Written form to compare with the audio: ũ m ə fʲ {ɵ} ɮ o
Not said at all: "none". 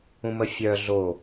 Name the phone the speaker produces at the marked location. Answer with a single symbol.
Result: œ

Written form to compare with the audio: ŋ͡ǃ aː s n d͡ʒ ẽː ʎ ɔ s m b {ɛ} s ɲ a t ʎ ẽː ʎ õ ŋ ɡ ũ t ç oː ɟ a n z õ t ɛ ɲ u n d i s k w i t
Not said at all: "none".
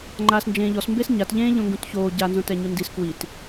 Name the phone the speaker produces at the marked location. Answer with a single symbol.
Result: e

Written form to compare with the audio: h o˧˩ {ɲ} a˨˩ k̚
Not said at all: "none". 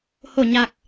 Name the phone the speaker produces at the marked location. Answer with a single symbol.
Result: ɲ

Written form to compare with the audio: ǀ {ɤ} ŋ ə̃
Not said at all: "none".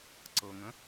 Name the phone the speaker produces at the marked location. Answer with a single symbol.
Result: ɤ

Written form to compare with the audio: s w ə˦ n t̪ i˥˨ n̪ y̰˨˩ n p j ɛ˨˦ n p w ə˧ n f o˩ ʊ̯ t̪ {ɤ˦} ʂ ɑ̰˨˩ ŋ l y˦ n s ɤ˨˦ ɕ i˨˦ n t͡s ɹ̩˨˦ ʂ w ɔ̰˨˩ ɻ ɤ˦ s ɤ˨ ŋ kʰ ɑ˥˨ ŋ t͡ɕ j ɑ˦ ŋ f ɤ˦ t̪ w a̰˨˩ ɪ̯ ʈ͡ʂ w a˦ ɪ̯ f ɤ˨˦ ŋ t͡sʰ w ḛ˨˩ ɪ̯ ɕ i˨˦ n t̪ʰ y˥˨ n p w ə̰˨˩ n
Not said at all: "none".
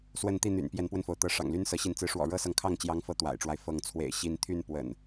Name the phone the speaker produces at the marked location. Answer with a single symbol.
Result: ɤ˨˦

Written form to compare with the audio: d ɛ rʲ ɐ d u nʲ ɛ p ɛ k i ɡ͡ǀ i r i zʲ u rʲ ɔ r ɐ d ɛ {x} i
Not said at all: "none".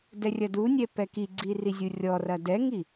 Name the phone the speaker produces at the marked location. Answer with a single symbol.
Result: ŋ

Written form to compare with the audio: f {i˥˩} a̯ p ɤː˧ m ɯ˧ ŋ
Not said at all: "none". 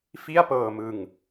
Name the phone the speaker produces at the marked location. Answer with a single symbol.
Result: i˥˩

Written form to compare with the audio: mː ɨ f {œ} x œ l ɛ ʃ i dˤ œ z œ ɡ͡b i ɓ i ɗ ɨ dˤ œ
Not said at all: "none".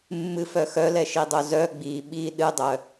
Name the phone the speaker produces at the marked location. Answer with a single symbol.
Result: œ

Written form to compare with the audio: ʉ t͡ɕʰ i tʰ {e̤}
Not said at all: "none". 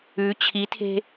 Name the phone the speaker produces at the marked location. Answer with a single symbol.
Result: e̤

